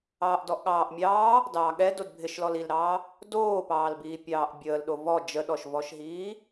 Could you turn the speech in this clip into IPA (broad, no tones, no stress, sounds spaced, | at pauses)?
ɑː ʔ d ɔ ʔ ɠ ɑː ʔ mʲ ɑː | d ɑː ɠ ɛ d o d bʱ ɪ ʃ l ɔ l i l ɾ ɑː | d oː p ɑː l b iː pʲ ɑː ʔ bʲ əː l ɗ o v ɔ d͡ʒ ə ɗ ɔ ʃ v ɔ ʃ ɦ iː